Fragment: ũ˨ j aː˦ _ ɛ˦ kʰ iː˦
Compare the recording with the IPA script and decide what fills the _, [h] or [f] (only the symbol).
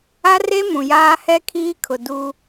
h